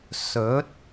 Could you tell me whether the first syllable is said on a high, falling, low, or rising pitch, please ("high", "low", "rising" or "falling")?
rising